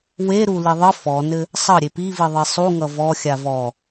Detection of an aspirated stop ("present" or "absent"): absent